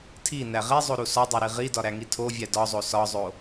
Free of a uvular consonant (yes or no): no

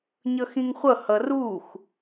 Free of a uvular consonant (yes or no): no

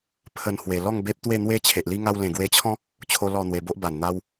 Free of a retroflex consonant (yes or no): yes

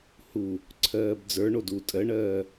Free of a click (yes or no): no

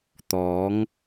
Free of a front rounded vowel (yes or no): yes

